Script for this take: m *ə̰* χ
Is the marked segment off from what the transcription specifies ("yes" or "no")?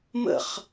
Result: no